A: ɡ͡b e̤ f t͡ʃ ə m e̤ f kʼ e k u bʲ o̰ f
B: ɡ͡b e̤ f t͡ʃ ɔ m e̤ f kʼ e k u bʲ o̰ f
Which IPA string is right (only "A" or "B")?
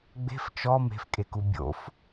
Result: B